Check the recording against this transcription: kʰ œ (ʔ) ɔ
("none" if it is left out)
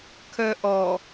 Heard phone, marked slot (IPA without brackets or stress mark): ʔ